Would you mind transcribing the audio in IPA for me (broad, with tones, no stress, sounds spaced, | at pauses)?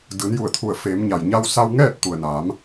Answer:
d ɯː˩˧ n j u˧˩ ə̯ t̪ʰ u˧˩ ə̯ f eː˩˧ m ɲ a˩ j ɲ a˧ w s a˧ w ŋ ɛː˥˨ t̚ t̪ u˩ ə̯ n aː˩˧ m